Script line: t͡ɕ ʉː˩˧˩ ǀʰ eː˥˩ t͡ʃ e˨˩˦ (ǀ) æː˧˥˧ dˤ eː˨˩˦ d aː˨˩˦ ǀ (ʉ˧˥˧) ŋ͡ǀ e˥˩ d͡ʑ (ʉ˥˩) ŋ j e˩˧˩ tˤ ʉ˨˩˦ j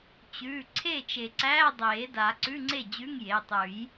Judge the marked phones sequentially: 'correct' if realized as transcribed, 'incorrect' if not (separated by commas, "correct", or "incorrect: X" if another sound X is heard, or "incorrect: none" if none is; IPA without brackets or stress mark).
correct, correct, incorrect: ʉ˧˥˧